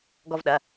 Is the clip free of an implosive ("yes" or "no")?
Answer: no